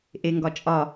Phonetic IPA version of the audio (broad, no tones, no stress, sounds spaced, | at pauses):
ʔ e ŋ ɡ ɒ t͡ʃʼ ɒ